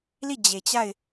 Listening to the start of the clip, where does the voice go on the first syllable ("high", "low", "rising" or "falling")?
falling